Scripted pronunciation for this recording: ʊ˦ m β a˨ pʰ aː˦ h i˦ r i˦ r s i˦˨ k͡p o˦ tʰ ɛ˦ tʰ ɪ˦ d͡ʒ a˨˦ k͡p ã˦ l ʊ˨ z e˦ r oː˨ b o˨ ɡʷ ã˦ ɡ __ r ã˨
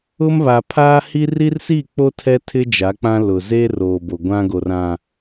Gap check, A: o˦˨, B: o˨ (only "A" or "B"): B